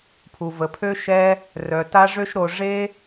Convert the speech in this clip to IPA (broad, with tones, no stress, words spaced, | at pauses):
pʰu˨və˨pʰø˦ ʃɛ˦ | rœ˨ta˦ʐø˦ʃɾo˧ ʐe˦